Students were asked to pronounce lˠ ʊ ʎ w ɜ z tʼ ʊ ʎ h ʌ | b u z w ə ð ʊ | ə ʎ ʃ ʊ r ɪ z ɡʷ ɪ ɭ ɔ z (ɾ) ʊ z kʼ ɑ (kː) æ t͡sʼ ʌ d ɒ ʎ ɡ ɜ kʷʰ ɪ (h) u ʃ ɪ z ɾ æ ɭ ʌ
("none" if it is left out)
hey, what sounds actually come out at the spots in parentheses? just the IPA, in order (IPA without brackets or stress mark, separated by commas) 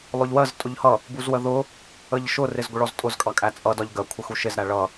tʼ, kʼ, x